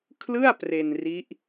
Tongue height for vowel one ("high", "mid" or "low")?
high